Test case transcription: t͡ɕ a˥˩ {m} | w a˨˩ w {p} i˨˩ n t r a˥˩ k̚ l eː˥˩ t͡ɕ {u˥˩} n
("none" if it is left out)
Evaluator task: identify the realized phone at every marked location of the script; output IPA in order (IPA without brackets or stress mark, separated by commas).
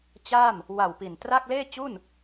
m, p, u˥˩